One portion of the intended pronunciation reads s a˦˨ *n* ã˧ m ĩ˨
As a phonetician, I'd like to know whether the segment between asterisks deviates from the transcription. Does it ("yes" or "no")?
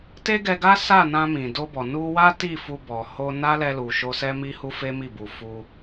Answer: no